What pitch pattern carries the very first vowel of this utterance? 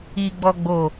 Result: low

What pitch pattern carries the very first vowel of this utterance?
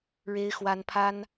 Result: high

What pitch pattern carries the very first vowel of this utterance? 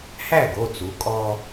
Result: falling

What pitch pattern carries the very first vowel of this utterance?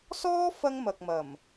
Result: high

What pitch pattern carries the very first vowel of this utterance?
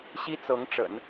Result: high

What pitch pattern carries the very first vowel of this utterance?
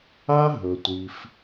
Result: high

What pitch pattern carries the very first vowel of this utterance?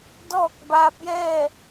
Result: falling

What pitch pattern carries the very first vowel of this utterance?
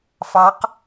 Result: rising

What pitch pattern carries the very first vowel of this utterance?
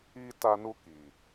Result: high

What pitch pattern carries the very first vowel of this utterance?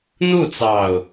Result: falling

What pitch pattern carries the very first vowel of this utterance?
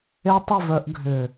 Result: high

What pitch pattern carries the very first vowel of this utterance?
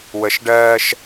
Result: rising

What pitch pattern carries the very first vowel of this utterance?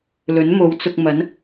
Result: rising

